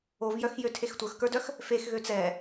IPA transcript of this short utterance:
ovjœxjøtʰex tʷə˞xkə˞dœx | fexɣø t͡sɛ

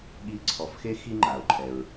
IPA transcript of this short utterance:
ɠi˧ ǀʰɔ˩˧fxe˥ xi˥ŋ͡ǃa˩ʊ̯ǃʰɛ˩ɹ

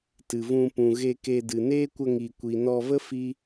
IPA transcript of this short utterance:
tɨ˨vũ˧ pũ˨ɣe˧ ke˧dɨ˨ neː˦kʷə˧ŋi˨ kʷi˨nɔ˧və˦ fi˦

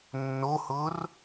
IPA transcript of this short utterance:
nːohʊːr

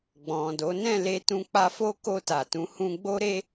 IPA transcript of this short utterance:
ɡ͡bɔ̃˨do˨˦ nɛ̃˦˨le˧ tũ˧k͡pa˧fo˦ ko˧ta˨ tũ˨˦hũ˧ ɡ͡bo˦ɾe˦

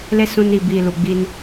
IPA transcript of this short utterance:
le˦sũ˧n i˨bi˨ lu˨ɡ͡bi˧n

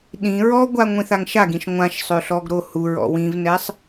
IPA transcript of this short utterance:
ɗĩ ɹɔɡʷa ŋʷĩθaŋʃaɡĩʃ ŋʷãʃsˤø ɬɔɡɾohuɹɔ̰ wĩvnɛsˤ

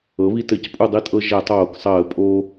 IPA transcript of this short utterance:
ɤ˩˥βi˦tɘ˧˩˧c pʼu˦˨dˤi˦˨tʼɤ˦ ʒɛ˧˩˧tˤoː˧˩˧ksˤəː˧˩˧ pʼo˦

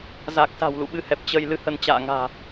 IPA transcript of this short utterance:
za˨˩k̚sa̤˨˩w lṵ˧˨ɓɨ˨˦hɛ˨˩p̚ t͡ɕə˧j lɨ˧hə˧n t͡ɕa̰ː˧˨ŋa̤ː˨˩

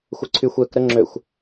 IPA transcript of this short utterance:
xʷəǀʰyxʷ øk ɾəŋ͡ǁøxʷ

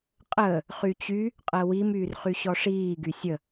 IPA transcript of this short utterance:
qʼəː | χyt͡ɕy | qʼɜwim yːrχyɕɔʂiː ɡysʲə

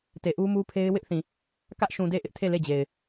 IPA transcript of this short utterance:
te˨ʔu˦mu˦pʰe˦ɪ̯ wɪ˦ʔθĩ˨ | kä˦ʔʃũ˨de˦˨ ʔɪ˦ʔtʰe˦˨ le˦˨d͡ʑe˨ɪ̯

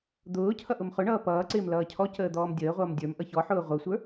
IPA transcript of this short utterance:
d̪ʊː cʰʌʔʊmχʊɳʌː pʌːǀɪːm lʌːcʰɔcəː d̪ɔːmdʲəːʁʷʌːm dʲə˞m ʔʌçɔħʊː ʁʷə˞sʷə˞

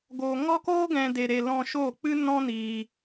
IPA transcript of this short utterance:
ɡo˧ŋɔ˦koː˦ɡɛ̃˧ de˧ɾe˧ lɔ̃˧ʃo˦˨k͡pɨ˦ nɔ̃˦niː˧

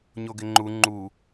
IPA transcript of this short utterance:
ɲoɡɪŋ͡ǃu ŋ͡ǃu

